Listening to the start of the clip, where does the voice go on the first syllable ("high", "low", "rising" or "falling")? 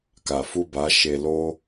low